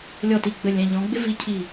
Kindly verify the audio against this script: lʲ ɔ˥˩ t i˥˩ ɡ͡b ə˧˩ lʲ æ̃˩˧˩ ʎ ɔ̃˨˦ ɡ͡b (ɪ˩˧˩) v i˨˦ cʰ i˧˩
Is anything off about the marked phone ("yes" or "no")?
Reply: yes